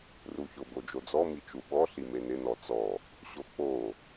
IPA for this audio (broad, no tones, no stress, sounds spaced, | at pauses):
r u ç ʊ b o d͡ʒ o d͡z ɔ m i t͡ʃ u ɓ ɔ ɬ i m e n ɪ n ɔ t͡s ɔ | ɕ o k͡p o